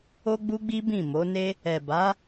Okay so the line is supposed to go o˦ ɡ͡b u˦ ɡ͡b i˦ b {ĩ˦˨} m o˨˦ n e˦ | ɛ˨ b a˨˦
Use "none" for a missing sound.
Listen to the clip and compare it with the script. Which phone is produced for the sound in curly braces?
ĩ˦˨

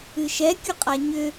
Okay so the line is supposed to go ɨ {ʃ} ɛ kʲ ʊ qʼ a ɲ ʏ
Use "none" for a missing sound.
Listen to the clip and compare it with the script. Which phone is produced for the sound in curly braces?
ʃ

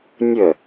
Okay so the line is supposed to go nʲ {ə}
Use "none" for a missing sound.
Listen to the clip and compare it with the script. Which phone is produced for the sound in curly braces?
ə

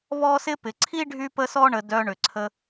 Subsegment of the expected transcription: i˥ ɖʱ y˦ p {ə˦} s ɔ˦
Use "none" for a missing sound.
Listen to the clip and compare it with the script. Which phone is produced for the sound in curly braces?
ə˦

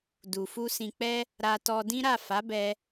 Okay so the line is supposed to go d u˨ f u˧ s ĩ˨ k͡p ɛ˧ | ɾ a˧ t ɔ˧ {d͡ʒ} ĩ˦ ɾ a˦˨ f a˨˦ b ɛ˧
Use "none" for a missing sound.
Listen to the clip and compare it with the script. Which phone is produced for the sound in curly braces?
d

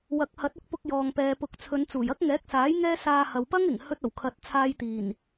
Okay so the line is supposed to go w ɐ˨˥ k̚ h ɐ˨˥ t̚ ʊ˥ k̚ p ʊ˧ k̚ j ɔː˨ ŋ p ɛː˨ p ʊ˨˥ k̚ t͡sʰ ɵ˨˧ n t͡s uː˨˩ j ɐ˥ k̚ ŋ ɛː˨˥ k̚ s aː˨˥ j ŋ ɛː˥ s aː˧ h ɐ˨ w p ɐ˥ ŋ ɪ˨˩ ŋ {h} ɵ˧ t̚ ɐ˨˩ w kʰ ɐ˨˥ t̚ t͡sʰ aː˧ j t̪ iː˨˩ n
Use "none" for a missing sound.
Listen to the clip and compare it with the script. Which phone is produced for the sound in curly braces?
h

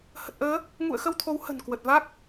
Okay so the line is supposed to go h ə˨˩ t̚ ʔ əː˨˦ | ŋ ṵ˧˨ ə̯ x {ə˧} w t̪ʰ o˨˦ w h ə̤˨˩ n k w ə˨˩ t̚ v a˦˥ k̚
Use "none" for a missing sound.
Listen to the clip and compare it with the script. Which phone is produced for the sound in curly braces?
ə˧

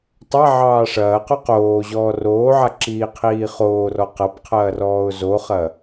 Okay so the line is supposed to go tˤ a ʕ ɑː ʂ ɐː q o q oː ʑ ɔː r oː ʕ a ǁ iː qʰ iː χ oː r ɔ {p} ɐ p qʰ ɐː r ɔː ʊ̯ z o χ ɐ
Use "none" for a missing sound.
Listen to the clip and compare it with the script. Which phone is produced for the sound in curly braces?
q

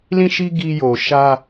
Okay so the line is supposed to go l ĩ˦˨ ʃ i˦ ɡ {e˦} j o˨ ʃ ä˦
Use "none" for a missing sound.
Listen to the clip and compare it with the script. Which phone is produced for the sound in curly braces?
i˦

